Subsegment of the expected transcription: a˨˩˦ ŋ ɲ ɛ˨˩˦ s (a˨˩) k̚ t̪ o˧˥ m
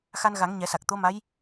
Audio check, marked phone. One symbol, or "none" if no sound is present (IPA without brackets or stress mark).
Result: a˨˩